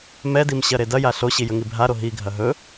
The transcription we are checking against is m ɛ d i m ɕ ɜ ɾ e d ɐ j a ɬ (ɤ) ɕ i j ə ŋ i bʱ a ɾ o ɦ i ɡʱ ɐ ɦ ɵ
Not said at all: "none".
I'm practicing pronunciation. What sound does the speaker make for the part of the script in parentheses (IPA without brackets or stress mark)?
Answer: o